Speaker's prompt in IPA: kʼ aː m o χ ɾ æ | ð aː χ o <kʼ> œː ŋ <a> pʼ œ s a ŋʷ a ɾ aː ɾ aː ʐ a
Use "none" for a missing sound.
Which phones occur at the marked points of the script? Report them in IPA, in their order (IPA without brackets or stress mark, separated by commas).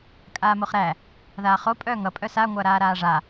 pʼ, ʌ